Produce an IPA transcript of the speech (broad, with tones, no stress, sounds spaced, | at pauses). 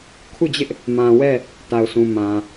kʰ u˦˨ d͡ʑ ɪ˦ ʔ | m ã˨ w ɛ˦˨ | t a˨ ʊ̯ s ũ˨ m ã˨